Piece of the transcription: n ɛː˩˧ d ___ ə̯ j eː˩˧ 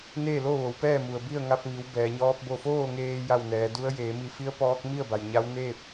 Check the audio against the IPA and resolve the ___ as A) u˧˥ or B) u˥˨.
A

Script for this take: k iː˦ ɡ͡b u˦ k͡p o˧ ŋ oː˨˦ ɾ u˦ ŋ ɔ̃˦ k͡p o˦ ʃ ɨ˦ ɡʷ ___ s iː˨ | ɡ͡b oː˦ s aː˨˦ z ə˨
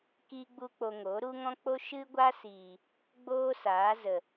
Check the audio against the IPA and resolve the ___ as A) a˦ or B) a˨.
A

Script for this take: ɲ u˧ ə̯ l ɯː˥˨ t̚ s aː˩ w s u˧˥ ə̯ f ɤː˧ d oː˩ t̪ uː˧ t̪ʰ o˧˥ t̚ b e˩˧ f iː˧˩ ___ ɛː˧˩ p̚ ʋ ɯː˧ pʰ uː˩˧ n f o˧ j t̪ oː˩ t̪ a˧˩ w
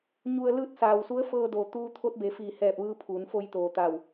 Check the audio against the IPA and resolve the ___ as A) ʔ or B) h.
B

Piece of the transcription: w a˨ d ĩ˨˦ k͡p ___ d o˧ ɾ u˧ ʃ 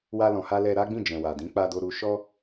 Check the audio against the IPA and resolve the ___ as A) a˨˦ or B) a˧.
B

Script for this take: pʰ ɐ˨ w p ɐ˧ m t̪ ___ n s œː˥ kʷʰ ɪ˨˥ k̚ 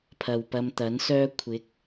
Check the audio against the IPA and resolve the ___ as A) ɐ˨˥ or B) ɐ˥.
A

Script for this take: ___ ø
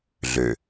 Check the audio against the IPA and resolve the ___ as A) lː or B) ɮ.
B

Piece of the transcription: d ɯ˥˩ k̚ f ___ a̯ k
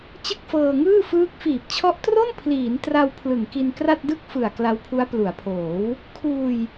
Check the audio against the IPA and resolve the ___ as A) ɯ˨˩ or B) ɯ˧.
A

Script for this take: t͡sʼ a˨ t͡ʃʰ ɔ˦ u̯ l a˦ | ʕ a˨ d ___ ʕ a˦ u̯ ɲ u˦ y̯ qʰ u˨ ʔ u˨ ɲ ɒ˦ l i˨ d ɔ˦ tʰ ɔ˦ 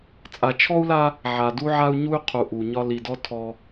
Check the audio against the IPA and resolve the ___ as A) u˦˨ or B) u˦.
B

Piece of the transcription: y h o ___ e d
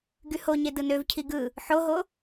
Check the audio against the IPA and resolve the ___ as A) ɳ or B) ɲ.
B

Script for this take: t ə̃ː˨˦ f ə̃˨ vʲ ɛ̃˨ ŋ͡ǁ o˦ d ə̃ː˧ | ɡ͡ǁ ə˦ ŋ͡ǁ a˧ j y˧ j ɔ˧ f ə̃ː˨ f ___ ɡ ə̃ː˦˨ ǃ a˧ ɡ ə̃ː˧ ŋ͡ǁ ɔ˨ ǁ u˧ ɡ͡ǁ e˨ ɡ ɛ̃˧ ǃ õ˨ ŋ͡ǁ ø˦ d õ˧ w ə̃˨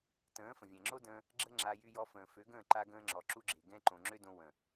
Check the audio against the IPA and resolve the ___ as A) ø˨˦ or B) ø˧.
A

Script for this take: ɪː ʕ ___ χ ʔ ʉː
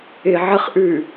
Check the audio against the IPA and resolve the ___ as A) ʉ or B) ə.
B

